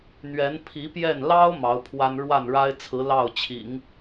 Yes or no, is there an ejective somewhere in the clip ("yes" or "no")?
no